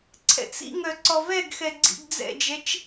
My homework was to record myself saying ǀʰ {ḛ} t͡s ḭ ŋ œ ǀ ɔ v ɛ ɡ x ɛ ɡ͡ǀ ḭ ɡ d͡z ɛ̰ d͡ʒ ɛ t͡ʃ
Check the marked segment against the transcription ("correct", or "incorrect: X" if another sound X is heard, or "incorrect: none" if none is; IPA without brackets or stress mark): incorrect: ɛ̰